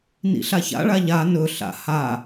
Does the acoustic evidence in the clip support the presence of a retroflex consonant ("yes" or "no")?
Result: yes